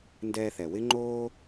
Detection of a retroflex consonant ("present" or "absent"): absent